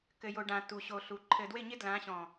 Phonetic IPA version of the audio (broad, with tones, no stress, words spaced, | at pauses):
kɘ˨jo˨ɖã˨ tu˨ɕo˨ɬu˨˦ ǃʰɘ˨dwɪ˦˨ɲɪ˦ dlã˨˦ɕɔ̃˨